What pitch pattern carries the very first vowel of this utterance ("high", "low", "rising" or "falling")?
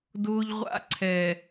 high